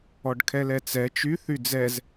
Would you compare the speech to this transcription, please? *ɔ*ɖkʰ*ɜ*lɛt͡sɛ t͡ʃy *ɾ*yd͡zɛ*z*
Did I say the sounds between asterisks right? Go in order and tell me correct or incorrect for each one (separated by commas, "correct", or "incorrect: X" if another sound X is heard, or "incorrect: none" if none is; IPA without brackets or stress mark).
correct, incorrect: ɛ, incorrect: θ, correct